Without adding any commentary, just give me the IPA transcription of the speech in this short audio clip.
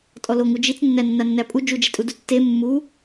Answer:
tʼɔloŋud͡ʒit͡s nːænːanːæpʼu d͡ʒud͡ʒetʼudu tːe mːu

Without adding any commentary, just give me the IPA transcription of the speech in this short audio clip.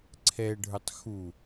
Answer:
ǀʰɛɖʱə˞tˤ xu

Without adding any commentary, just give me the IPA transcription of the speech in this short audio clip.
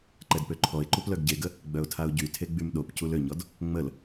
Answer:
ǃɛdpøǃʰɔɪ̯ǃup lœɡɟeɡə | ɡ͡bœʊ̯tʰaʊ̯ɟytʰe ɡ͡bymɗopcul øɲɔd | ŋ͡məl

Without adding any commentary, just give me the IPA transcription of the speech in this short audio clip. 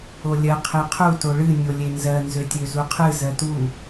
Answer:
olʲɜ qʰeqʰu toɭɨ nʲolʲenzɜ nzøtʲøzuqʰɨ zɜtu

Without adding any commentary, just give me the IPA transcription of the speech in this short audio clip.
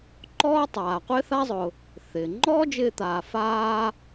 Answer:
ǃɔː˥ tˤaː˩qʷɪː˥θa˥zˤʊ˩ | θɪː˩ ŋ͡ǃɔː˥d͡ʒɪː˧t̪aː˩ faː˥

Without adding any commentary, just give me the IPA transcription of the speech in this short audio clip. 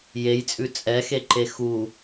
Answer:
jejt͡sʼʉ t͡sʼɛxeǃe xu

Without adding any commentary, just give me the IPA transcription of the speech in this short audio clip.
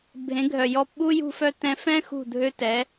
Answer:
bʱẽ˩˥ɡʱœ˩ jɔ˧pɓu˥ jṳ˧fœ˧ tɛ̃˧fɛ̃˥ xṳ˥˩dʱø˥ tɛ˩˥

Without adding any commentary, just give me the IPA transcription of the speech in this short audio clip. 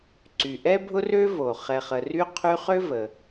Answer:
ǀy˨ʔɛ˥bʱʊ˥rø˥ vo˩ χɛ˨χə˨ry˦ qʰy˦χø˥və˨

